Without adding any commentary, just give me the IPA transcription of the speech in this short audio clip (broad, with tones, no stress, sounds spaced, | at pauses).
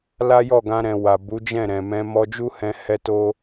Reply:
l a˦ j ɔ˦˨ ɡ ã˧ ɾ ɛ̃˨ w a˨ b u˨˦ d͡ʒ ɛ̃˦˨ ɾ ɛ̃˨ m ɛ̃˧ m ɔ˧ d͡ʒ u˦ h ɛ̃˧ h ɛ˦ t o˦